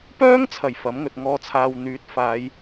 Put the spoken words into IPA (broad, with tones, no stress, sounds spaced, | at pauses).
p œː˥ ŋ t͡sʰ ɐ˨˩ j f ɐ˨˥ m ŋ ɵ˨ t̚ ŋ ɔː˧ t͡sʰ aː˧ w n̪ yː˨˥ t̚ f aː˨˧ j